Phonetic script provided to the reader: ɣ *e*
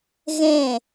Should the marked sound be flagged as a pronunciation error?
yes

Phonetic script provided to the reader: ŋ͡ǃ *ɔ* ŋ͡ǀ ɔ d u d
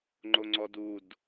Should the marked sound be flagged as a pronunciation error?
yes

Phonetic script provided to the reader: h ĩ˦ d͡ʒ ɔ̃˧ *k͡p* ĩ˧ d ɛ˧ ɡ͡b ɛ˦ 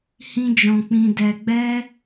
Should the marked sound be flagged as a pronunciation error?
no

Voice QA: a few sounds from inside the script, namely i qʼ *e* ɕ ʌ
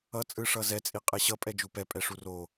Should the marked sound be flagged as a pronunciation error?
no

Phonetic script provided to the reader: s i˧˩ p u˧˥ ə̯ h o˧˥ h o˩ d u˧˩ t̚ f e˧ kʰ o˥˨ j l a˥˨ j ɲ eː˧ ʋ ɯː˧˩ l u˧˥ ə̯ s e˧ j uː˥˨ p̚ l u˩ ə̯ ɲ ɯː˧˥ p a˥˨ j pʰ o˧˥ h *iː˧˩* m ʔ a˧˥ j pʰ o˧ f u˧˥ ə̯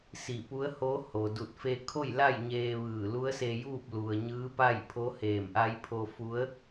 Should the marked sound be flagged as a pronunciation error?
yes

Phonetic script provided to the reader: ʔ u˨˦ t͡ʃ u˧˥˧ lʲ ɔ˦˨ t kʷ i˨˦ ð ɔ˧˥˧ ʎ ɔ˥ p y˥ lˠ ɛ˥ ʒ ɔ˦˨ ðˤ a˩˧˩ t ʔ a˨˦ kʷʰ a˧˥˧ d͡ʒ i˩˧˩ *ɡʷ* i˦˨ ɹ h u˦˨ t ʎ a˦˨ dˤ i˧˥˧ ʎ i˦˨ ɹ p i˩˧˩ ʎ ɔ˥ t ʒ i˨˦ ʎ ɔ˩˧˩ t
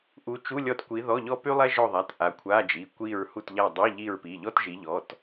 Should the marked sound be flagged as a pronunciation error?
yes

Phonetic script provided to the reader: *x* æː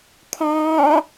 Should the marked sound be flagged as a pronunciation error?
yes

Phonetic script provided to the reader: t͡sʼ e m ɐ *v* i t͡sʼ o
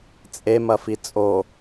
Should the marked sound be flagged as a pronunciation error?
yes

